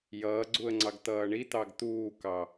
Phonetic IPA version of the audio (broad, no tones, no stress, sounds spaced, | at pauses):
j ʌː ɡ͡ǀ u ə̯ ŋ͡ǀ ɑ ɡ t̪ ʌː ɳ i t̪ ɑ ɡ t̪ uː k ɑ